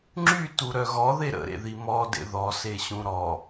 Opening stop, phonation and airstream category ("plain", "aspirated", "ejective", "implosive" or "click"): click